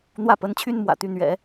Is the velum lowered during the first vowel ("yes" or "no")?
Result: no